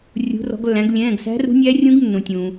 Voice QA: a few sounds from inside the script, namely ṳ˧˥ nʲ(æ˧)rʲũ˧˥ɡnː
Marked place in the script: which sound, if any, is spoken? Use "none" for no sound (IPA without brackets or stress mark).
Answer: æ˧˥